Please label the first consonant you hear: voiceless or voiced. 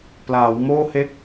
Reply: voiceless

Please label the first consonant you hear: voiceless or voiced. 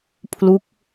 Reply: voiceless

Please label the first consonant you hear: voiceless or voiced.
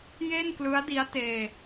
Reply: voiced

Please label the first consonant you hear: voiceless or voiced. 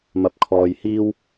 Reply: voiced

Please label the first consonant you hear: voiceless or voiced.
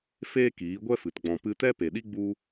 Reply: voiceless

